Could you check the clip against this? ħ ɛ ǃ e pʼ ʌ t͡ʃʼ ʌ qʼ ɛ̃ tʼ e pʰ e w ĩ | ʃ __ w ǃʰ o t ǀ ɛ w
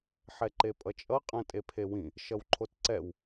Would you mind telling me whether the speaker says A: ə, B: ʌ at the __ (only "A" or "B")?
B